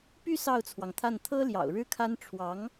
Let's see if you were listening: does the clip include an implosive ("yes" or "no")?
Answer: no